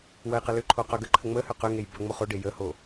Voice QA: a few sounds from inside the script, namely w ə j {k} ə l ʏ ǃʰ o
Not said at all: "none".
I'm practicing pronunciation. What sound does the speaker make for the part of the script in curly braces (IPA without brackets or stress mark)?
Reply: q